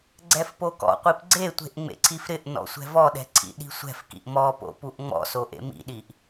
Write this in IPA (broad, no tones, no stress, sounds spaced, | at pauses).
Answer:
ɡ͡ǀ ɛ f p o k ɔ̰ qʷ i p ɡ͡ǀ e tʷ e̤ ʔ ŋ͡m ḛ ǀʰ i f ɾ ɪ ʔ n ɔ̰ sʷ ɛ̤ v ɔ ɗ ɛ̤ ǀʰ ḭ ɗ i̤ sʷ ɛ̤ f k ḭ ʔ m ɔ p o̰ p u ʔ ŋ͡m ɔ̰ s o ʔ ḛ m ḭ ɗ i ʔ